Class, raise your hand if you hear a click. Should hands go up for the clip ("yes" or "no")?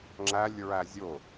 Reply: yes